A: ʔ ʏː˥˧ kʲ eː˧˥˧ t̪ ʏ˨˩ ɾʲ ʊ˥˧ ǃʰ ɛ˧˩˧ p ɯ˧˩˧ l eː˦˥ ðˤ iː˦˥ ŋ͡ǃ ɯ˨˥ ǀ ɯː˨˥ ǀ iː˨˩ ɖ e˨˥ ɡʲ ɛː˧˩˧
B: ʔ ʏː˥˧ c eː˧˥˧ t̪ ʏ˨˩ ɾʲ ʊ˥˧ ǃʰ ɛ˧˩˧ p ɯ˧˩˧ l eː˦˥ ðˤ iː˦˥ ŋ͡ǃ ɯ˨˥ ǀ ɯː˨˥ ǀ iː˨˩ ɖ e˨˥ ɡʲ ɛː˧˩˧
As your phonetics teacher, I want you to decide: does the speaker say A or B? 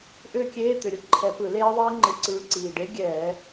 A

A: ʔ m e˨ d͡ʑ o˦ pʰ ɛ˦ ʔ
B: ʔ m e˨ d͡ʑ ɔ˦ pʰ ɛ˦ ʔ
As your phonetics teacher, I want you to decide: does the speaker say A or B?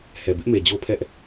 A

